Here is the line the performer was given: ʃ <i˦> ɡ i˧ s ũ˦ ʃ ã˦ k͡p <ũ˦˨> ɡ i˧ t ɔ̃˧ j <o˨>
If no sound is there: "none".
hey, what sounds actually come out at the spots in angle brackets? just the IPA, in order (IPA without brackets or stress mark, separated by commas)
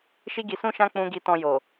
i˦, ũ˧, o˨